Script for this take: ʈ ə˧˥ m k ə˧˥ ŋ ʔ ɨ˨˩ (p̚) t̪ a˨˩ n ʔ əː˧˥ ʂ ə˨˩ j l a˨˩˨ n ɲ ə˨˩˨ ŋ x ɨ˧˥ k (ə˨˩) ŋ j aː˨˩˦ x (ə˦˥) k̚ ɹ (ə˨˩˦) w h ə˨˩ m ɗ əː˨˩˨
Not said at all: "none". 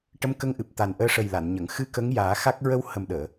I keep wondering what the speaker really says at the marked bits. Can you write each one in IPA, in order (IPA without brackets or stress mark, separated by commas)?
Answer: p̚, ə˧˥, a˦˥, ə˧